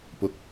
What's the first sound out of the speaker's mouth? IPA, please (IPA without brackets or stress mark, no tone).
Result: p